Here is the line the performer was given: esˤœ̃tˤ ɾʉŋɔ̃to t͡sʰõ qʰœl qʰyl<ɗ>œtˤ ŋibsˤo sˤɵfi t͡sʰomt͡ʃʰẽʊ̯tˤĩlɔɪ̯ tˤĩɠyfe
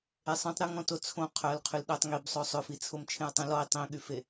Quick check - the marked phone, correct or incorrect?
correct